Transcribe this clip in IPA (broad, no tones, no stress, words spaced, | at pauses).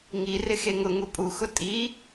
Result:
ŋirɪ xeŋʊ ŋupʼuxʊ tʼi